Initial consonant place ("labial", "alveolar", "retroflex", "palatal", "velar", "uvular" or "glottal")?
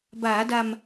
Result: labial